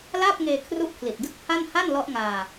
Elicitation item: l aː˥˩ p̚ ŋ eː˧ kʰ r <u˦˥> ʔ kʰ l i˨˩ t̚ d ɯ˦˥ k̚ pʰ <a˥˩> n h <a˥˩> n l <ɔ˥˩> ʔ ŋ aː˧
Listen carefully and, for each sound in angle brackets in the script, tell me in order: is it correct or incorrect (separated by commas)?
correct, correct, correct, incorrect